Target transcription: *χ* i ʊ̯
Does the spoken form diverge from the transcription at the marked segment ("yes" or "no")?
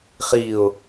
no